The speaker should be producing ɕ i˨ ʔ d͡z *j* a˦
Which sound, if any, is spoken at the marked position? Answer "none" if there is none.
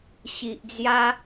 j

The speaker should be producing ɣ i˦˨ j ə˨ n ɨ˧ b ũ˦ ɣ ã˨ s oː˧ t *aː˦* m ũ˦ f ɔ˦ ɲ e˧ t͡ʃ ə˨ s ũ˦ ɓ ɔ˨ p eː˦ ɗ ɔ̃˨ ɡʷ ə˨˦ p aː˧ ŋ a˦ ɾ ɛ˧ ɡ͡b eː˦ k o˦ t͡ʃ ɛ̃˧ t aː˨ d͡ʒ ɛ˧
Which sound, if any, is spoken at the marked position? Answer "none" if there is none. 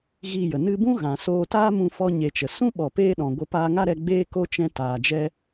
aː˦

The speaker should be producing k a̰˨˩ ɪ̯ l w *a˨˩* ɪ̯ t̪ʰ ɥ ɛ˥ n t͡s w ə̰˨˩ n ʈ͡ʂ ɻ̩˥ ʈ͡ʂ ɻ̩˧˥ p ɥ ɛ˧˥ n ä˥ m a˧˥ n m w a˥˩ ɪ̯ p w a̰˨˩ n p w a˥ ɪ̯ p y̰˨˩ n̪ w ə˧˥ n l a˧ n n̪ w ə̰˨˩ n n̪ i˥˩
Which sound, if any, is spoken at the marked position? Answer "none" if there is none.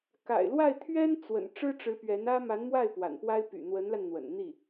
a˥˩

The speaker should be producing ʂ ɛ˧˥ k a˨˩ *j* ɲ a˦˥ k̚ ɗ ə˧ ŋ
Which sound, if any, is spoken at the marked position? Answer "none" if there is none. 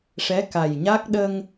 j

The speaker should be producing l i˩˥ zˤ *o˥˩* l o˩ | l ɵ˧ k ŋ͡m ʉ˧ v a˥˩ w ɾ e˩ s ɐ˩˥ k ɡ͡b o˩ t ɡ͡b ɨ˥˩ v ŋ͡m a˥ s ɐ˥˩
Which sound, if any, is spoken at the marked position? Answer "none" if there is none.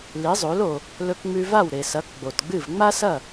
o˩˥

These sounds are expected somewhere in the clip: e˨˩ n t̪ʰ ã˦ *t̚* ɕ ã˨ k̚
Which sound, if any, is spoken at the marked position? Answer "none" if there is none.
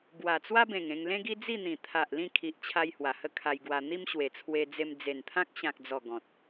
k̚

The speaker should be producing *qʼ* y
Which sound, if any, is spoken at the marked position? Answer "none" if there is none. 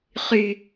χ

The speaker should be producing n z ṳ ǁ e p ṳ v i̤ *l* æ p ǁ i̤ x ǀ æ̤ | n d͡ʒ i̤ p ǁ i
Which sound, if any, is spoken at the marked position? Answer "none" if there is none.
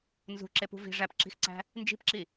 ʐ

